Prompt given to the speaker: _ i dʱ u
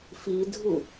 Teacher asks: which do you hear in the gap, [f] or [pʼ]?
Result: f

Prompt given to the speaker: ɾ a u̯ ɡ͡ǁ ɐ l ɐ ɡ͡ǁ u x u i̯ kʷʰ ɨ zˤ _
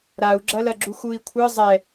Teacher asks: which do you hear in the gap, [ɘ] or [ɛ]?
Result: ɛ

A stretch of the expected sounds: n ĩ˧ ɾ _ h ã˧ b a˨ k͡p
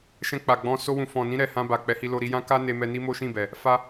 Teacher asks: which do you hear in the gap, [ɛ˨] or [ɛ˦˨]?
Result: ɛ˨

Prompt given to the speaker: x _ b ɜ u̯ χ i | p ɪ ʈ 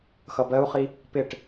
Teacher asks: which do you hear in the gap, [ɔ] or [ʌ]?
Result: ʌ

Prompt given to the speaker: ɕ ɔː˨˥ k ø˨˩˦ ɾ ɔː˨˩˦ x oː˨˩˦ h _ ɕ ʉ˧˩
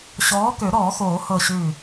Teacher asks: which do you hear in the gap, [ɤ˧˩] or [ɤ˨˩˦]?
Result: ɤ˧˩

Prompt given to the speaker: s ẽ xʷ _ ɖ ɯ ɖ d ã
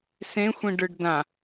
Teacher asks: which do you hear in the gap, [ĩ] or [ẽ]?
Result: ĩ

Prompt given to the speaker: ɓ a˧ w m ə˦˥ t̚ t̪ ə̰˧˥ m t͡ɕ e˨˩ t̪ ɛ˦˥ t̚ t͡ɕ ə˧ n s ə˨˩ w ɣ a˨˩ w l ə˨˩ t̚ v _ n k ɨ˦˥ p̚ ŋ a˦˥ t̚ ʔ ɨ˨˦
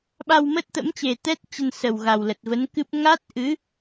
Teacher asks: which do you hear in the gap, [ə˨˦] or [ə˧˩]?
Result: ə˨˦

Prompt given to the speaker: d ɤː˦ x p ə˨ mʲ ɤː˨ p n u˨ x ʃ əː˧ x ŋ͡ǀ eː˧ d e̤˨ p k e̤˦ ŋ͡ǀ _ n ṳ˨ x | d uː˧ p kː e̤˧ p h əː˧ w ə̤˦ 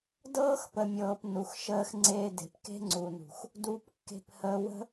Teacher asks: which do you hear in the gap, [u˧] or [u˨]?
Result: u˨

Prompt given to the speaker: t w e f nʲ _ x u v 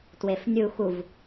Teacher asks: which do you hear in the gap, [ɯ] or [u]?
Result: u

